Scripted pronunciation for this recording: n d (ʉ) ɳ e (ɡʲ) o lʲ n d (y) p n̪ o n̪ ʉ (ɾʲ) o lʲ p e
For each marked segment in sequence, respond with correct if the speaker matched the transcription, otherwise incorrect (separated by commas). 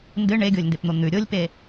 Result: incorrect, correct, incorrect, correct